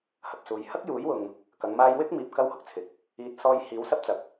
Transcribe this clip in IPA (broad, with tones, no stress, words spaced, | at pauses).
hɐ˨p̚suː˨˧j hɐ˥k̚juː˨˥jwʊ˨ŋ | kɐ˨˥ŋmaː˥j wɪ˥k̚miː˨p̚ kɐ˥whʊ˨k̚ t͡sʰɪ˨k̚ | iː˨t̚ sɔː˧jhiː˨˥w sɐ˥p̚ t͡sɐ˨˥k̚